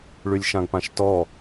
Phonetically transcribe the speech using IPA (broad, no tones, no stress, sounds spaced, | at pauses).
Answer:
ɭ y lʲ ʃ ã ɡ p ã ʃ t ɔ